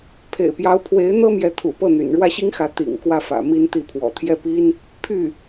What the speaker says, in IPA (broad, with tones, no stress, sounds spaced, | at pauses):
pʰ ḛ˨˩ ɪ̯ p j ɑ˧˥ ʊ̯ pʰ w e˧˥ ɪ̯ n̪ ɤ˥ m j ɛ˧˥ t̪ʰ ṵ˨˩ p ɤ˥˩ n̪ y̰˨˩ n ɻ w ä˥˩ ɕ i˥ ŋ x ä˧˥ t̪ ḭ˨˩ ŋ k w ä˥˩ f ä̰˨˩ m i˥ n t̪ i˥˩ pʰ w ɔ̰˨˩ t̪ʰ j ɛ˥˩ p i˥ n | pʰ y˥˩